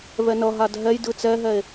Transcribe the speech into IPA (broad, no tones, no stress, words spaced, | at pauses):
vɛnʌɦad ɦɛj dɯt͡sɛɦɛe̯